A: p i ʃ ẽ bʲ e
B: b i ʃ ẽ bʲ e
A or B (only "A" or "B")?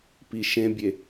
A